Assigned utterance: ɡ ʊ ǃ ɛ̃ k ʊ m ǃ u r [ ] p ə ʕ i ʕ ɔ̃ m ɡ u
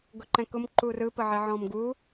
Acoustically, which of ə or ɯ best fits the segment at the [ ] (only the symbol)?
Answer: ɯ